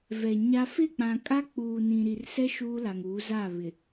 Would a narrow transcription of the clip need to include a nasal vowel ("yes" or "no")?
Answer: yes